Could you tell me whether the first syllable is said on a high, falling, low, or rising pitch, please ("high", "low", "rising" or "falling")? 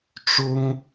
high